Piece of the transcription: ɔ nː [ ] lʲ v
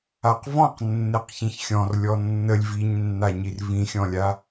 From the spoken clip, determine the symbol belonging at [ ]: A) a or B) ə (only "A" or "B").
B